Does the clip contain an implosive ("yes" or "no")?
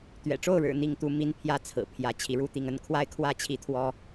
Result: no